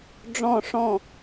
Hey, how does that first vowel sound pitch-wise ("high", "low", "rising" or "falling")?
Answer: falling